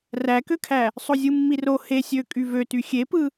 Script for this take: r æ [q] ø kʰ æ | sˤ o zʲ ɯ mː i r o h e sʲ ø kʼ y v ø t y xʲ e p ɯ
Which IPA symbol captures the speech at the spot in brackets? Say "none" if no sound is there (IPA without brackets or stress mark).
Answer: k